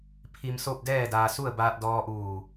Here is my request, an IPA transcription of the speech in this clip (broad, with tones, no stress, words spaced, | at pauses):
pʰi˧m so˥˨p̚dɛː˥˨daː˧ su˥˨ə̯baː˧t̚ dɔː˧ʔuː˧˩